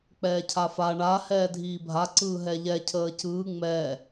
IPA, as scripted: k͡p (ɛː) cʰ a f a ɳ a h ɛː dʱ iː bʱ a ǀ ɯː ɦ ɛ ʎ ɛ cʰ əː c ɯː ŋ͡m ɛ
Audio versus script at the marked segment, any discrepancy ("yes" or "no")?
no